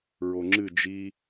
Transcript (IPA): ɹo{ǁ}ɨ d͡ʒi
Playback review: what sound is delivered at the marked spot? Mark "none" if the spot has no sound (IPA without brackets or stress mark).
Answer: ŋ͡ǁ